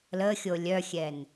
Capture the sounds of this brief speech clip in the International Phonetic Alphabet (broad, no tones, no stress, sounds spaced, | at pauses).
l ə xʲ o lʲ œ xʲ ɛ n